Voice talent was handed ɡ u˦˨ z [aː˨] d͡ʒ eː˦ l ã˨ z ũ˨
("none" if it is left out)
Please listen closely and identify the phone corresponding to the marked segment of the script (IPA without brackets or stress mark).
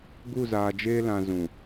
aː˨